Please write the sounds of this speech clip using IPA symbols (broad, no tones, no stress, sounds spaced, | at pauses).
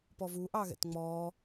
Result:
p ɔ v u ʔ ɑ ɣ ɛ̰ t ŋ͡m ɔː